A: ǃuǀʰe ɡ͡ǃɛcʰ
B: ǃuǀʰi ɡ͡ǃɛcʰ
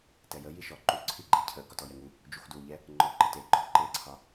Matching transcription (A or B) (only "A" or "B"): B